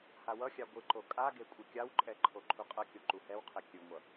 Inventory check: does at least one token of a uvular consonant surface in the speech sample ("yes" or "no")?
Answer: yes